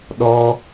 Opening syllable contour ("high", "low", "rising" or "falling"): high